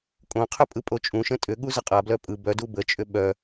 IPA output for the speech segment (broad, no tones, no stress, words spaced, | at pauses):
kʼõqʰʏ pʼɯpʼot͡ʃʼũʃə̃ tʼʏ ɠuzəqʼablœ pʼɯ bœdu bət͡ʃʼʏ ɓœ